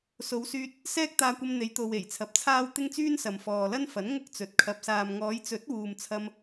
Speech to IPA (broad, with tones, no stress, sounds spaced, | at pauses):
s o˨˧ w s yː˧ t̚ | s ɛː˥ k̚ t̪ aː˧ kʷ ɐ˧ m n̪ e˨˧ j t̪ o˨ w e˨˩ j t͡sʰ ɐ˨˥ p̚ t͡sʰ aː˥ w t̪ ɪ˥ ŋ t͡s yː˥ n s ɐ˨ m f ɔː˨ l ɐ˥ n f ɐ˨˥ n ŋ ʊ˥ k̚ t͡s ɵ˨˥ t̚ kʰ ɐ˧ p̚ s aː˨ m ŋ ɔː˨˧ j t͡s ɵ˨˥ t̚ w uː˨ m t͡sʰ ɐ˧ m